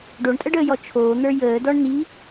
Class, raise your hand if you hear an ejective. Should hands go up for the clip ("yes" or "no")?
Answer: yes